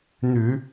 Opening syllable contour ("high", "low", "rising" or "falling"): low